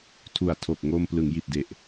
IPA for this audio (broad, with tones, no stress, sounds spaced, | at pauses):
tʰ u˨˩ a̯ tʰ o˨˩ k̚ ŋ o˧ m p l ɯ˩˦ ŋ j i˨˩ t̚ d e˨˩ ʔ